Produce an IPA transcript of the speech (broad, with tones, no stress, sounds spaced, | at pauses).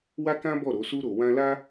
w a˦ k ã˦ b ɔ˦˨ ɾ o˨˦ s u˧ ɾ o˨ w ã˧ l a˦